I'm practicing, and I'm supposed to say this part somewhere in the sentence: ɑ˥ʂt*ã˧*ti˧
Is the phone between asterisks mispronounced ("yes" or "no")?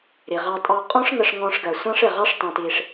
yes